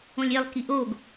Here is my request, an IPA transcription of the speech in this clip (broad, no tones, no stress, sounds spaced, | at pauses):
õ lʲ e lˠ k i ʔ o ɡ